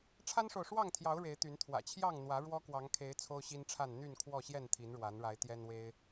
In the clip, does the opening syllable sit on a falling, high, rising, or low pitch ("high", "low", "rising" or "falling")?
high